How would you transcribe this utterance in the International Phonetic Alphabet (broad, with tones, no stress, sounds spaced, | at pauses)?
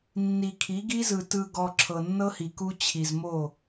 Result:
nː i˨ kʰ i˨˦ ɡ i˦ z ɯ˨ t ɯ˨ ɡ ɔ˨ ǁʰ ɤ˨ nː ɤ˦ h i˨ k u˦ t͡ɕʰ i˨ z m o˦˨